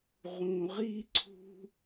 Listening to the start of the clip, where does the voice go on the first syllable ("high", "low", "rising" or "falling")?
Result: low